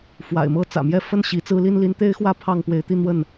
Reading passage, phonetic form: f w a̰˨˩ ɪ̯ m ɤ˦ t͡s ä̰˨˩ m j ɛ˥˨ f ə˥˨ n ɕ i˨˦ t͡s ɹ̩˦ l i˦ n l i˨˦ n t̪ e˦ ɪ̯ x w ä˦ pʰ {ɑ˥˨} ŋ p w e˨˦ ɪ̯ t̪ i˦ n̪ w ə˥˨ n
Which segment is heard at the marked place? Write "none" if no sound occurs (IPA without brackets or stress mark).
ɑ˥˨